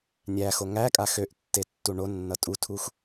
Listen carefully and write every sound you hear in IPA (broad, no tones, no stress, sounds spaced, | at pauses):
nʲ æ x o ŋ æ kʼ a x ø ʔ tː e tː u ɳ o nː ʌ tʼ u tʰ u x